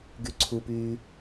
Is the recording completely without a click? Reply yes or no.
no